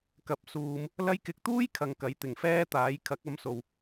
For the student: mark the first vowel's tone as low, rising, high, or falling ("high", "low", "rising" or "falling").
low